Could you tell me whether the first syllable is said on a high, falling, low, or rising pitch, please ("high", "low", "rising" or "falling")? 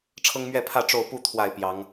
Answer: high